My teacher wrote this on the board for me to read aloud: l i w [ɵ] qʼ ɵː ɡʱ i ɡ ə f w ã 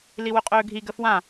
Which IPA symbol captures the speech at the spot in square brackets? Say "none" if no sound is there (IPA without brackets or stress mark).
ɵ